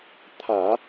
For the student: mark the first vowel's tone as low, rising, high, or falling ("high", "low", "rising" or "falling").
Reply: low